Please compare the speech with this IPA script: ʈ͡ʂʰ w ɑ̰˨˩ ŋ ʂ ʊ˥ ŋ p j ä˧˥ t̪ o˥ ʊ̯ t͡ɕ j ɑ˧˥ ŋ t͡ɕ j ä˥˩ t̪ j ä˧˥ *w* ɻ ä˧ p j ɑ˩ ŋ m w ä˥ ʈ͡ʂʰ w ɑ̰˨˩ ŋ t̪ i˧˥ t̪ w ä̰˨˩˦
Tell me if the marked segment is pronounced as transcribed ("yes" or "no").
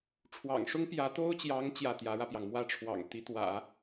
no